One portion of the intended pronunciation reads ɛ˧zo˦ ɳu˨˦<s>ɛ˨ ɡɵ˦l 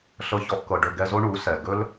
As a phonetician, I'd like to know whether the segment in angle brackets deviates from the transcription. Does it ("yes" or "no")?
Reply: no